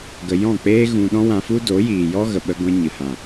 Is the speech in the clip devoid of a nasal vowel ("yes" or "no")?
no